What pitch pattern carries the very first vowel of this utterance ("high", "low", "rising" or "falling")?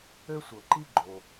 high